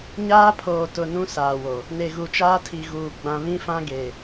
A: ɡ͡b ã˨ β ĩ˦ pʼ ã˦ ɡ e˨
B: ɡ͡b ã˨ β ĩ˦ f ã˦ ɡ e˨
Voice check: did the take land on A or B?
B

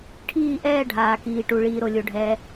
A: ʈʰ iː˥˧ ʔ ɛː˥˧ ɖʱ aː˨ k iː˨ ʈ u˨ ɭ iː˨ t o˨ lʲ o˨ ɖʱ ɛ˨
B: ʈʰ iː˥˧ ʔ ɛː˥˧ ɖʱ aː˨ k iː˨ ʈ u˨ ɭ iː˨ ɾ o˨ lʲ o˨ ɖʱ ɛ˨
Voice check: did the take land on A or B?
B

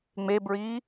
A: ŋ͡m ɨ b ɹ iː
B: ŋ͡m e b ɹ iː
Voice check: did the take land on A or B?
B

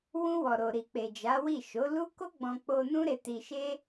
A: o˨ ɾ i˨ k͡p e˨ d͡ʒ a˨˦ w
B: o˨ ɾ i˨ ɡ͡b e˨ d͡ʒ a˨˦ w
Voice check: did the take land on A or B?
A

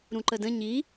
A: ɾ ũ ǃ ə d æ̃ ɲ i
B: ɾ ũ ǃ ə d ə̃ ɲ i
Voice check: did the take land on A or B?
B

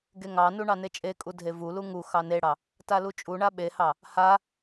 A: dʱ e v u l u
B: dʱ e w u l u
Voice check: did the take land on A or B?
A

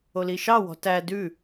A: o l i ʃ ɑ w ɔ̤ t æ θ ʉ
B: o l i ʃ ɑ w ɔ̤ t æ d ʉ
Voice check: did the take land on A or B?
B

